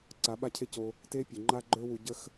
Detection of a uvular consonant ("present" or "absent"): absent